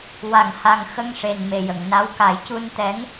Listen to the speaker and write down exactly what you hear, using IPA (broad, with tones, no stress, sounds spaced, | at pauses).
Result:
w a˨˩˨ ŋ h a˨˩ ŋ x ə˧ ŋ ʂ e˨˩ n m e˨˩ j ə˨˩˨ ŋ n a˧˥ w k a˨˩˦ j c u˧ n t̪ ɛ˧˥ ŋ